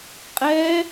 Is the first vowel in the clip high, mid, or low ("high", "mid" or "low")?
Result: mid